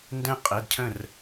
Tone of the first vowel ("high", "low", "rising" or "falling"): high